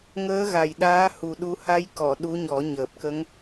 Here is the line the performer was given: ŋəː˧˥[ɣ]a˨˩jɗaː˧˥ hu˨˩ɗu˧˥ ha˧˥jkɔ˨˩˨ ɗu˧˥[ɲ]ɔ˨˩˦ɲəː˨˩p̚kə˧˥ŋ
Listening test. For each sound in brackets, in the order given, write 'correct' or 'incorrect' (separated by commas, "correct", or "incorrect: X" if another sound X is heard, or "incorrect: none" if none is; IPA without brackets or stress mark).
correct, correct